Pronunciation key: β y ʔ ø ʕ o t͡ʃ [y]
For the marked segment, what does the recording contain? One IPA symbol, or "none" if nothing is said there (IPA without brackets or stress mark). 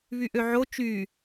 y